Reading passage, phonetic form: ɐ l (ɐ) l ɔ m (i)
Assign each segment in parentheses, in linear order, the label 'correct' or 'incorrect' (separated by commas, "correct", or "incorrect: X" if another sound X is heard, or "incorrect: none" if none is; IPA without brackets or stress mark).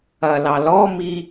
incorrect: ɑ, correct